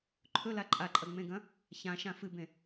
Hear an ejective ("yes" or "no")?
yes